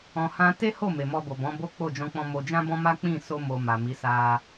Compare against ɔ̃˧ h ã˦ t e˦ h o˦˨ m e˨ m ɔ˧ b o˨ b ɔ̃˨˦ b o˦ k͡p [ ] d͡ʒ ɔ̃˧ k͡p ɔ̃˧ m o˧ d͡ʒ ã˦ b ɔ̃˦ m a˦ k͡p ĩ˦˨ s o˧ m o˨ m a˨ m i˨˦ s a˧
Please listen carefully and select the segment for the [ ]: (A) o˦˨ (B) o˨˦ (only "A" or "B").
A